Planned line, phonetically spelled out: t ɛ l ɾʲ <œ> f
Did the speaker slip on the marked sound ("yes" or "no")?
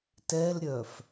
no